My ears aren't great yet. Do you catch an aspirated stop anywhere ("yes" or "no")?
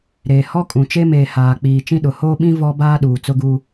no